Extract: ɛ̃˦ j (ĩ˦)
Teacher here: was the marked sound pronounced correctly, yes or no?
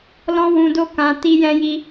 no